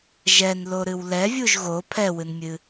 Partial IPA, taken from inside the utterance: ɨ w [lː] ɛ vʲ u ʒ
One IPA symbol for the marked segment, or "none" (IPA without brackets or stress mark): l